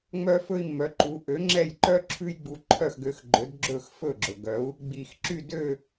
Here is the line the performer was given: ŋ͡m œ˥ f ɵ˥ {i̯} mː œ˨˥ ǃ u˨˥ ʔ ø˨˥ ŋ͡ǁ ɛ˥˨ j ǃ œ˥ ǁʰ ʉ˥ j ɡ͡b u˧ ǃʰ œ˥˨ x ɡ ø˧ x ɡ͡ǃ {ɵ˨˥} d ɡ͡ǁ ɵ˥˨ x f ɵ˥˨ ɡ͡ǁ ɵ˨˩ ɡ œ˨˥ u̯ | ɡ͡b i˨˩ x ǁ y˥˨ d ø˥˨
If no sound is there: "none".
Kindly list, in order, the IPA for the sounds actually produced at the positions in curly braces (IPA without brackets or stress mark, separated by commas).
i̯, ɵ˨˥